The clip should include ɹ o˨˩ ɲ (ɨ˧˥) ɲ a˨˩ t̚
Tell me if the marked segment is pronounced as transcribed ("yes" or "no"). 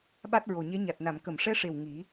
no